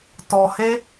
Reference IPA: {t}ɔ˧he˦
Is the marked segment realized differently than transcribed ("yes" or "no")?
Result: no